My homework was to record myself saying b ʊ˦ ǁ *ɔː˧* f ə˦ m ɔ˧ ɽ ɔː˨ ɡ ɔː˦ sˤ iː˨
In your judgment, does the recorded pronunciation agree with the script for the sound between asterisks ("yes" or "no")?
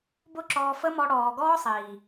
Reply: yes